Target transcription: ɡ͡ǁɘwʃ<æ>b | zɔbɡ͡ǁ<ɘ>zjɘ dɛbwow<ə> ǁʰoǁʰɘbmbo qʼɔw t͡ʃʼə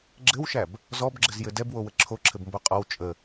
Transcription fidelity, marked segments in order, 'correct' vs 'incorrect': correct, correct, correct

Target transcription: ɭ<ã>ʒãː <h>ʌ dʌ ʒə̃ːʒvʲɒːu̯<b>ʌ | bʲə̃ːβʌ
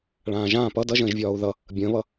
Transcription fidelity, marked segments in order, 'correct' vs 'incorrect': incorrect: ãː, incorrect: p, incorrect: ð

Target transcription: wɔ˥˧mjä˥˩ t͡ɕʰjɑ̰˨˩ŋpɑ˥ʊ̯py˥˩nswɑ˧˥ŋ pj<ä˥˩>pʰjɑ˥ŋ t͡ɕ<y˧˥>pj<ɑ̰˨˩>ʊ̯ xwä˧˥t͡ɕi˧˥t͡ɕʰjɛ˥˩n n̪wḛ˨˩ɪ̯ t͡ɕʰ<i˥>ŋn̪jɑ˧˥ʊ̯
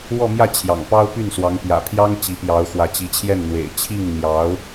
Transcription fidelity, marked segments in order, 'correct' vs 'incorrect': incorrect: ä̰˨˩, incorrect: i˧˥, incorrect: ɑ˧˥, incorrect: i˥˩

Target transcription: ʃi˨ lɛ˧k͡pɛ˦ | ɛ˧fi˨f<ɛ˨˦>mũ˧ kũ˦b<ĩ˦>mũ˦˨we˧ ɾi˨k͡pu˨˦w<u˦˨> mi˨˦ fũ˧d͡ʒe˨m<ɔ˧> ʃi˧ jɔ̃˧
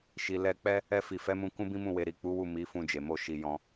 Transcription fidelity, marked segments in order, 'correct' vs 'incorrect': correct, correct, correct, incorrect: o˧

